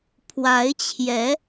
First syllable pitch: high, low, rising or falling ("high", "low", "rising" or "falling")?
rising